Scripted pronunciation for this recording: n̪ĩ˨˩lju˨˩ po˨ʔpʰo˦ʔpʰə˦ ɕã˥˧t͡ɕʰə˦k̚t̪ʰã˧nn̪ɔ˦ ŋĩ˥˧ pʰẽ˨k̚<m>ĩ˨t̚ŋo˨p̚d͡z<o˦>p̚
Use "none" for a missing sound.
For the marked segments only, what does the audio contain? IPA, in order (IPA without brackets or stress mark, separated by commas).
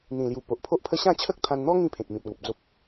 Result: m, o˦